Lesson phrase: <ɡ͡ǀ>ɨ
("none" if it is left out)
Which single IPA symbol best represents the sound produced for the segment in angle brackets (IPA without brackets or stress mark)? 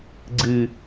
ɡ͡ǀ